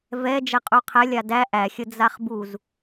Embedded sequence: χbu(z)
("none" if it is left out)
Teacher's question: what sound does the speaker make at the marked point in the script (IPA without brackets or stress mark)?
z